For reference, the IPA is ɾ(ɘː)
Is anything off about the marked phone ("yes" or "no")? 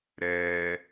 yes